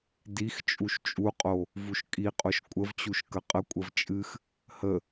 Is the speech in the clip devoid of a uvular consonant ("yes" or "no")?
no